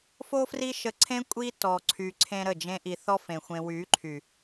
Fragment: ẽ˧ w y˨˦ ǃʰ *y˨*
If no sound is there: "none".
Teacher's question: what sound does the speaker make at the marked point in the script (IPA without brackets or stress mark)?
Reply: y˨